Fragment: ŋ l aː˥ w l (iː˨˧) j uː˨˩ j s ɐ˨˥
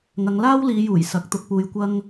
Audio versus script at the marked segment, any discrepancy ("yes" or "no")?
no